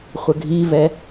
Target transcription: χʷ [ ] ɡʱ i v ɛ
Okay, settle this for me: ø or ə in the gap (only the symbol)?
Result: ə